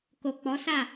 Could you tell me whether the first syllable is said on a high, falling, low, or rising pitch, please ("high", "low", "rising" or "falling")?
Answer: low